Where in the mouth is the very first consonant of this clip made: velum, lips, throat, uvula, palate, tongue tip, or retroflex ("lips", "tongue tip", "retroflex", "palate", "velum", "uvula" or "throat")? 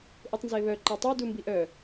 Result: throat